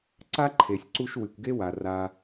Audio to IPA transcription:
ǀ a˥ ǃʰ e˨ sʲ ǀ u˦ ʃ w ɨ˨ kʷ ɡ e˥ w a˨ r a˦

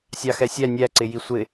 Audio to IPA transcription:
sʲ ɑ x ɛ sʲ æ nʲ æ ǀ ɪ j i sʷ ɪ

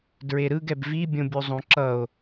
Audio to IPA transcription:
d ɹ e ɾ ɯ ɡ ɛ b v i bʲ õ bʲ u zˤ õ ǁ ʌ o̯

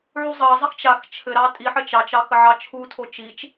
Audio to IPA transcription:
ʕ u zˤ ɑ zˤ ɘ x t͡ʃ a x t͡ʃʰ ɘ ɾ ɑ tʼ i ħ ɘ t͡ʃ ɑ t͡ʃ ɑ x ə ʕ ɑ t͡ʃʰ u tʰ o t͡ʃ i t͡ʃ

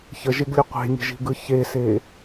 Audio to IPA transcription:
ç ə ʒ e ɡ lʲ ə qʷ e̤ nʲ ə̤ ʒ i̤ ɡ ɯ ç e s e

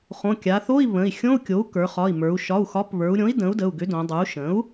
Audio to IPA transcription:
χ õ˩˧˩ kʲ a˩˧ θ o˧˥˧ i̯ β ə̃˩˧˩ i̯ xʲ õ˧˥˧ u̯ kʲ o˩˥ u̯ k ə˞˩˧ χ ɒ˩˧˩ i̯ m ə˞˩˧ u̯ ʃ ɒ˩˧˩ u̯ x ɒ˩˥ p β ə˞˩˧ u̯ ɾʲ õ˩˥ i̯ d ə̃˩˥ u̯ d ə˩˧˩ u̯ ɡ ʏ˩˥ d õ˩˧ dˤ ə˞˩˥ u̯ ʃ ə̃˩˥ u̯

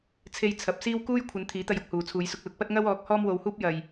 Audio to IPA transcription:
t͡sʰ e˧ j t͡sʰ ɐ˨˥ p̚ s iː˥ w k uː˥ j kʷʰ ɐ˨˧ n t̪ʰ iː˨˥ t̪ ɐ˧ j ʊ˧ k̚ h uː˨ t͡sʰ uː˨˧ j s ʊ˧ k̚ l ʊ˨˥ k̚ p ɐ˥ t̚ ŋ ɐ˥ w ɔː˨˥ k̚ h ɔː˥ m w o˧ w h uː˥ p̚ j ɐ˧ j

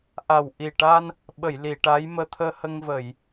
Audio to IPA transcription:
ʔ a˨˩ w ʔ i˨˩ ʈ a˧ n | ɓ ə˨˩˨ j l i˨˩˨ ʈ a˧˥ j m əː˧˥ t̪ʰ əː˧ h ə˧ ŋ v ə˨˩˨ j

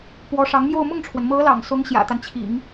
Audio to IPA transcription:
p w ɔ˧˥ ʂ ɑ˧˥ ŋ m j o˥˧ ʊ̯ m ʊ˥˩ ŋ ʈ͡ʂʰ w ə˩ n m ɤ˧˥ l ɑ̰˨˩ ŋ s ʊ˧˥ ŋ ɕ j ä̰˨˩ t̪ a˦ n t͡ɕʰ ḭ˨˩˦ ŋ

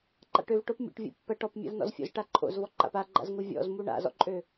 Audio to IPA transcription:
ǃ a̰ ʈ ø v ʈ o p mʲ o̰ ʈ vʲ o̰ pː ɜ ʈ ɔ p mʲ a̰ v n ɔ̰ z fʲ o̰ z ʈ a ǃʰ o̰ z v ɔ ǃ a̰ p a ɡ͡ǃ a̰ z ŋ u vʲ ɔ̰ z m u ɳ a̰ z ɔ̰ ǃʼ ø

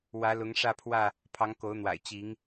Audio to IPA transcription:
w ä˨˦ l ʊ˨˦ ŋ ʂ ä˥˨ pʰ w ä˥˨ | pʰ ɑ˨˦ ŋ k o˨˦ ʊ̯ n̪ w a̰˨˩ ɪ̯ t͡ɕ i˨˦ ŋ

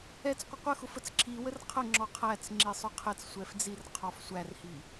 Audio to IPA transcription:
ɛ t͡s qʷ ə qʷ ə x ʊ f ə t͡s ǁʰ i w ə r qʰ ə ŋ͡ǁ ɔ qʰ æ t͡s ŋ͡ǁ i sˤ ʊ qʰ ɛ t͡s sʷ ɛ f d͡z i r qʰ ɔ f sʷ æ r h i

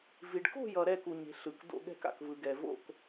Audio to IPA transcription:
v i˨ ɖ k o̤˥˧ j ʌ˨ ɾ ɛ˥˧ k u˨ ɲ e̤˨ ɬ ɯ˨ k d o̰˥˧ ɠ ɛ̤˥˧ k a̰˨ k v ɯ˨ ɡ ɛ˨ v o̰˥˧ k

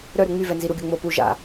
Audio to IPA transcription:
ɾ œ ɾ u ŋ͡m y v ɛ n z i ɾ u ɡʲ o ŋ͡m o p u ʒ a̰

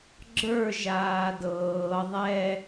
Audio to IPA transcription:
ɡ͡ǁ ə˞ ʒ aː d ɤː ðˤ ɛ

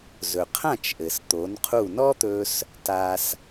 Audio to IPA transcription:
z ɵ˩ qʰ ã˥˩ t͡ʃ ʔ ɘ˩ s t̪ o˩˥ n qʰ u˥˩ n ɔ˥ t̪ ɵ˧ s | t a˧ s

